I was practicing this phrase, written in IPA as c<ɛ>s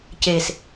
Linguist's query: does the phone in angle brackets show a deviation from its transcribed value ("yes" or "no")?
yes